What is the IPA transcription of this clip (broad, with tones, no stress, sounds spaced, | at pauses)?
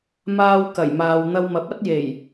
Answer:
m aː˥ w k ɐ˨˩ j m aː˨ w n̪ ɐ˧ w m ɐ˨˥ p̚ ɐ˥ t̚ j e˨˩ j